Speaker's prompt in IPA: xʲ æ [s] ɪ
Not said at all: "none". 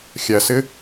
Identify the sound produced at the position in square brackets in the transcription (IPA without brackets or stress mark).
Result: s